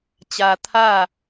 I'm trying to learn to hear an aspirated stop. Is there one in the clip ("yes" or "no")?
yes